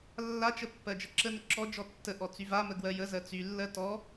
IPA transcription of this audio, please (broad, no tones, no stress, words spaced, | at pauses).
lːat͡ʃə pːɜd͡ʒəǁənə ǁɔd͡ʒɔ tːəʔɔ t͡syvamə ɡwɜjəzɜ t͡sylːɜ tɔ